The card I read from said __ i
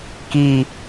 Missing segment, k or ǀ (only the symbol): k